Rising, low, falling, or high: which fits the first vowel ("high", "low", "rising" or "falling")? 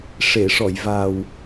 low